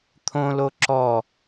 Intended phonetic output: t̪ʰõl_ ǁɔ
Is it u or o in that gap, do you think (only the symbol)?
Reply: o